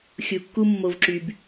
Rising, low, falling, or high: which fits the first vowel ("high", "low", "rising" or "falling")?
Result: low